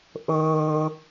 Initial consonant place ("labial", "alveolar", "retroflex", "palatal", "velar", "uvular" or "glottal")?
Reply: glottal